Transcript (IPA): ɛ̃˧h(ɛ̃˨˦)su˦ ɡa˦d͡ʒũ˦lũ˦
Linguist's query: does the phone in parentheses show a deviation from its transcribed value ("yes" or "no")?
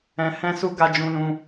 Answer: yes